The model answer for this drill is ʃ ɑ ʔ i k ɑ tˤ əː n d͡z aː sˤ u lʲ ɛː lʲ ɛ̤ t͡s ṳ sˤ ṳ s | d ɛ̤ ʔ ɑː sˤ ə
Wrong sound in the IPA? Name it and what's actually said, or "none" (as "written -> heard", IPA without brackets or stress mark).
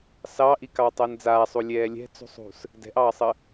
ʃ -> s